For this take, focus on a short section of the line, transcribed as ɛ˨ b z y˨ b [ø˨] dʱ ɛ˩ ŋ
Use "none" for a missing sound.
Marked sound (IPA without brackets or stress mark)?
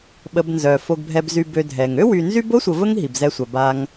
ø˨